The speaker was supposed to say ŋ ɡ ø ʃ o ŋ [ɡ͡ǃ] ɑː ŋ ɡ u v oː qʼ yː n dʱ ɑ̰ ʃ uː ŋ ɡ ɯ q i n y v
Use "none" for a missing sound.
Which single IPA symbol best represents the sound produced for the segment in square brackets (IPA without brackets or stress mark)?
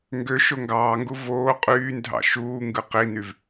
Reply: ɡ